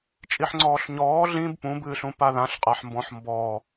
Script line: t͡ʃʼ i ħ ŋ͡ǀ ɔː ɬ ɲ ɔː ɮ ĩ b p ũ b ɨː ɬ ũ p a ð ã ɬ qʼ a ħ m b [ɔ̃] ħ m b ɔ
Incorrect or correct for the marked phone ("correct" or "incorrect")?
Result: correct